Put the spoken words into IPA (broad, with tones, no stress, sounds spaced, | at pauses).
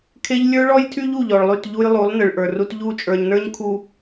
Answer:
kʰ e˦ ʎ lʲ ə˞˦ ɭ ɔ˦ j tʰ y˦ ʎ u˦˨ ʎ ɔ˨ ɭ lˠ y˦˨ t ʎ u˦ j lˠ u˨˦ lˠ n ɯ˨ ɭ ʔ ə˞˨ r u˦ t ʎ u˦˨ t͡ʃʼ ə˞˨ ɲ n ə˞˦ ɲ kʰ u˨